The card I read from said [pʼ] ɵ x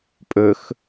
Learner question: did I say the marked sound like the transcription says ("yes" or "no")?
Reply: yes